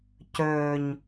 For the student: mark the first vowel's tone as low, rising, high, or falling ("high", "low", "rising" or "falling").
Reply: low